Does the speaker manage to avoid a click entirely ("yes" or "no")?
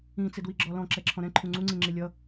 no